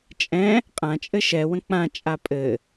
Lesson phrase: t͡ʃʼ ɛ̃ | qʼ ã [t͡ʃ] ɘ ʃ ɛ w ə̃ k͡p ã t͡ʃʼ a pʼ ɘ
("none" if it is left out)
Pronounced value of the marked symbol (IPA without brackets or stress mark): t͡ʃʼ